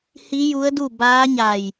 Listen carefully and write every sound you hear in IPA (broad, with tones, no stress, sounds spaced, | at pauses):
h i˧˥ j u˧˥ ə̯ d u˥˨ b aː˧˥ ɲ a˧˩ j